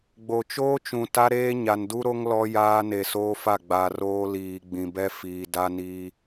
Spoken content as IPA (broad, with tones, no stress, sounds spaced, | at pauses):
ɡ͡b o˨ t͡ʃ oː˦ t͡ʃ ũ˨ t a˦ ɾ eː˦ ɲ a˨ n d u˦ ɾ o˦ ŋ l ɔ˦ j aː˦ n e˨ s oː˦ f a˦˨ ɡ͡b a˨ r oː˦ l iː˨ ɡ͡b ĩ˨ b ɛ˦ f iː˨ d a˦ n iː˦